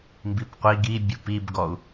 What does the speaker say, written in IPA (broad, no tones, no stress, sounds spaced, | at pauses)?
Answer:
m b i p qʷ i ɡ i bʲ u p i b ɡ ɔ u̯